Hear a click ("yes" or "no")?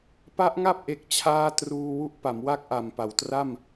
no